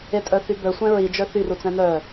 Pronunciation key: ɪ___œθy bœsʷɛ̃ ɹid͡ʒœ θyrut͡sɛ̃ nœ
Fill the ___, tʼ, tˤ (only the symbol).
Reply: tʼ